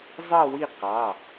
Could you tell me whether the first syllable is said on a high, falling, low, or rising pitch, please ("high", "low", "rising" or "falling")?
falling